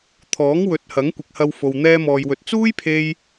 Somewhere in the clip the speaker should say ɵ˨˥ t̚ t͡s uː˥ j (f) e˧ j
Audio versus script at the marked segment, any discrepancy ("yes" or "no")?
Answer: yes